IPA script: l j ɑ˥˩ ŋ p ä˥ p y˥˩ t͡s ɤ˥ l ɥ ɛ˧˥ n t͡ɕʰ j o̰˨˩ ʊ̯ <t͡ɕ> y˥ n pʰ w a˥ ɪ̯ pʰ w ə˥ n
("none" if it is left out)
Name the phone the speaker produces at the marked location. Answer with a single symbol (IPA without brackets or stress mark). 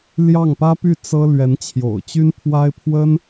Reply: t͡ɕ